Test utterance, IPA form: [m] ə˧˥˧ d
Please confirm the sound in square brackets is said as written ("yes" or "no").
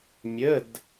no